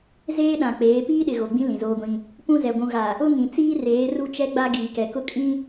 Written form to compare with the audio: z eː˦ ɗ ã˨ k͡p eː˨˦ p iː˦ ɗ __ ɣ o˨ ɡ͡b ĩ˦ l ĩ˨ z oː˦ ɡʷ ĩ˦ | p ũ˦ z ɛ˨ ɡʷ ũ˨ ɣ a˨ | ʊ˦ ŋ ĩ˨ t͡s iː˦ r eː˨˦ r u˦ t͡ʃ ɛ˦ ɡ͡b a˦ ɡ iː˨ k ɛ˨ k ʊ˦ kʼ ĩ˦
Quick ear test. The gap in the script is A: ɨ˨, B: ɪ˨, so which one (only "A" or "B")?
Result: B